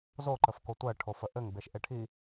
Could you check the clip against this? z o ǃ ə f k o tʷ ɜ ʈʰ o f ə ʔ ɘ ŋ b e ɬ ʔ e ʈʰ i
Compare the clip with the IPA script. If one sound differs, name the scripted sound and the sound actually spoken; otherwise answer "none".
ɬ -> ʃ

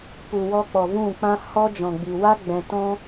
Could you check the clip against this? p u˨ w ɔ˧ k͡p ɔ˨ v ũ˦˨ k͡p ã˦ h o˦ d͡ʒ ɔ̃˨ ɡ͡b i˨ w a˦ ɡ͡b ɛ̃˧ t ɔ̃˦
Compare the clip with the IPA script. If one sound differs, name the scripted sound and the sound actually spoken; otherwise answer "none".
o˦ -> ɔ˦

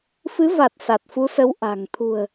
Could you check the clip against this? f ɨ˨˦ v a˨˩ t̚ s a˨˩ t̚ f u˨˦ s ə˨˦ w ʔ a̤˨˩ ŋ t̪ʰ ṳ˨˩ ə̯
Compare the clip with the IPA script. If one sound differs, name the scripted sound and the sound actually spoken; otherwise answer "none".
none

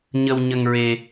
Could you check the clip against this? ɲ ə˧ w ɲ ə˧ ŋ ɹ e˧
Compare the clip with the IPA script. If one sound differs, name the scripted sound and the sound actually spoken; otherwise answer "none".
none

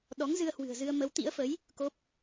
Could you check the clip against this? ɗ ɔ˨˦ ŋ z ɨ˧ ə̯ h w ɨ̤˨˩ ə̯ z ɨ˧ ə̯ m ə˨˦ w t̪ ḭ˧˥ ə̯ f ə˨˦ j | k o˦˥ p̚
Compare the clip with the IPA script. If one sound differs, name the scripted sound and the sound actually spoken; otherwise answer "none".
none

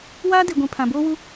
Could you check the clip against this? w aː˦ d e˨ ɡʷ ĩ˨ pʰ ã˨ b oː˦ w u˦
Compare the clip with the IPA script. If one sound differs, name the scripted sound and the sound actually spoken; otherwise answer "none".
none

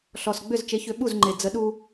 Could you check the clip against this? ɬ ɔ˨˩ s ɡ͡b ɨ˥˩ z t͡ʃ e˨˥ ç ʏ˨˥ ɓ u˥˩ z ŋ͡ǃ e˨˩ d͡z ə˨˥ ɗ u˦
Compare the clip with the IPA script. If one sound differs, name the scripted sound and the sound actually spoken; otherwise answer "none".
ɨ˥˩ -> ʏ˥˩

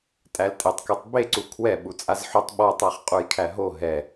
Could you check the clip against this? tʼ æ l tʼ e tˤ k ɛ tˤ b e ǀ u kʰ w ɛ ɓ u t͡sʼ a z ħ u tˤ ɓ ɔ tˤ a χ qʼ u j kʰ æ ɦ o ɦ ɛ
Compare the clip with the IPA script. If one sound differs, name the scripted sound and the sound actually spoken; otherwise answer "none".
none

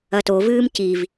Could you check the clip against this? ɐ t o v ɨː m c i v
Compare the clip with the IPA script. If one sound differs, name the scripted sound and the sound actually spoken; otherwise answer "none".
none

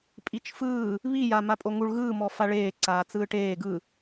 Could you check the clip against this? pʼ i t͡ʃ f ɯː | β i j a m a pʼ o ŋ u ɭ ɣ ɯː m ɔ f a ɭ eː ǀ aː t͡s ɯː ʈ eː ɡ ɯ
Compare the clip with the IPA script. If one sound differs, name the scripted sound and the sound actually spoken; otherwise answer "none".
none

